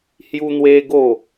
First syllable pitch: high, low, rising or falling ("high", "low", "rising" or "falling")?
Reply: high